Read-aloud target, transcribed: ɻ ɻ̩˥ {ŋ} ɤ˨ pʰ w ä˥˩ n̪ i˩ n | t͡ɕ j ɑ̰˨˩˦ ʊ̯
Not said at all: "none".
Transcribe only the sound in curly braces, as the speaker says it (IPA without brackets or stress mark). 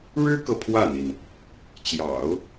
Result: k